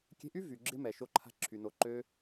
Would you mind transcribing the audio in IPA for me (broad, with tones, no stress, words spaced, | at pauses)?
kʲe̤˧ʔy˦ vy˨ɡ͡ǁɪ˦mɛ˨ ʃo˦ǃʰa̤˦ǁʰy˨no˨˦ ǃø˧